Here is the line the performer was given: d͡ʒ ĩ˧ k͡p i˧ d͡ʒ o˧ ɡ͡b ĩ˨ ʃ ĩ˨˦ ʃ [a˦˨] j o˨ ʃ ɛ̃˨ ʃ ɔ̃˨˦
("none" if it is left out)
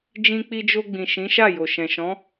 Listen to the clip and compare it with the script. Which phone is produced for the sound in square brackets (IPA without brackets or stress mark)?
a˦˨